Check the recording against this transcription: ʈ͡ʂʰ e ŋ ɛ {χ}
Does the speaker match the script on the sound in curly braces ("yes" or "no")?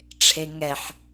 no